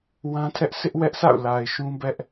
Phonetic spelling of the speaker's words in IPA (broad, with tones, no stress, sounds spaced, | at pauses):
w ã˦ tʰ ɛ˦ ʔ sʰ ɪ˦ ʔ w ɛ˦ ʔ sʰ a̰˦˨ ʊ̯ l a˨ ɪ̯ ʃ ũ˦ b ɛ˦ ʔ